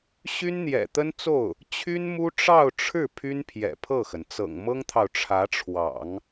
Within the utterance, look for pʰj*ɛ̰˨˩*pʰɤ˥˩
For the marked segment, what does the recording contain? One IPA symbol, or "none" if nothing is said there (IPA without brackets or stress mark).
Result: ɛ̰˨˩